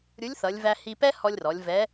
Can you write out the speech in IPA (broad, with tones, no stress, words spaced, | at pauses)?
ɾʲu˧˥lʲθʌ˩˧lʲ væ˧hi˧pɛ˥ hɔ˧lʲrɔ˩˧lʲ vɛ˧˥